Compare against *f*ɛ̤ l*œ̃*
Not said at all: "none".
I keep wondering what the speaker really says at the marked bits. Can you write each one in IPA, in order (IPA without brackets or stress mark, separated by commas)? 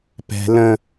p, ə̃